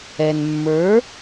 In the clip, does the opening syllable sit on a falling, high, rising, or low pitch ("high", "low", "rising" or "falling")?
low